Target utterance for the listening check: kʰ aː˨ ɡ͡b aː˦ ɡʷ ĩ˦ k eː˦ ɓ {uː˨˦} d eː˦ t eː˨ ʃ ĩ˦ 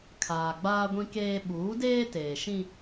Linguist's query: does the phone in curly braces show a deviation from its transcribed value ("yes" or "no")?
no